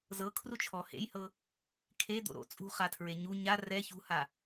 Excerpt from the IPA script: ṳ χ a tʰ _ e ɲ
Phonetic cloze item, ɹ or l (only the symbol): ɹ